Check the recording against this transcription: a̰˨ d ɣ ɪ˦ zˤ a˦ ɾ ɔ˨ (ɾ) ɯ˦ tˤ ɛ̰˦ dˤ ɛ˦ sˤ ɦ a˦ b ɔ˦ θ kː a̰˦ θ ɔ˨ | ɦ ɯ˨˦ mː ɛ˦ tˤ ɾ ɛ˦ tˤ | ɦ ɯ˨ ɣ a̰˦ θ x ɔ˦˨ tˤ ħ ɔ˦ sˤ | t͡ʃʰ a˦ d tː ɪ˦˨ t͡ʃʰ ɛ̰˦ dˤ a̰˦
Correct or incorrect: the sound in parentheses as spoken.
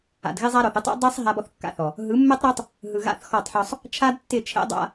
incorrect: θ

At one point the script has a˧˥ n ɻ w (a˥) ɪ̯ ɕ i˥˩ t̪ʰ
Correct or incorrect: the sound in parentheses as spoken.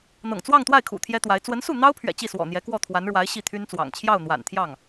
incorrect: a˧˥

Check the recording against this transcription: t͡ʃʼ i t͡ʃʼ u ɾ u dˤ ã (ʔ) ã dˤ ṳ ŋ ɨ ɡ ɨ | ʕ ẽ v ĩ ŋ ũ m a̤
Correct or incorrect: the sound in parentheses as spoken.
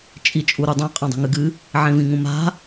incorrect: qʼ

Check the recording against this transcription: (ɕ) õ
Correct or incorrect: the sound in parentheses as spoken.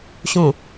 correct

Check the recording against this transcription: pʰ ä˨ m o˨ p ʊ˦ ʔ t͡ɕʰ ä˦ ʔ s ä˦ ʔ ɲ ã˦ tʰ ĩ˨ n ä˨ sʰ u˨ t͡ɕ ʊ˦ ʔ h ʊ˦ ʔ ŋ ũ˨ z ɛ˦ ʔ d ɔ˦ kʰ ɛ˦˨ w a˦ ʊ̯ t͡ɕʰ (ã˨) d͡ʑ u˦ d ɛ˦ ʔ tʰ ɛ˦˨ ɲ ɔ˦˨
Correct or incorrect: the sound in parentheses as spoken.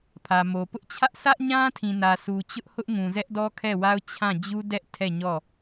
incorrect: ã˦˨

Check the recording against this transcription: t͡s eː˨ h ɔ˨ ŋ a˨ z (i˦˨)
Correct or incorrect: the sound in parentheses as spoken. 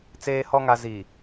incorrect: i˨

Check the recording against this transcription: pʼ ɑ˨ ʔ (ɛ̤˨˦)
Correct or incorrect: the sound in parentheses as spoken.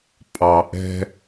incorrect: ɛ̤˦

